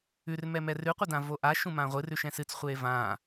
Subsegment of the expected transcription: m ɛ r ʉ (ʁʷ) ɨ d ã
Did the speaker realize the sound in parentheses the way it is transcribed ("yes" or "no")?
no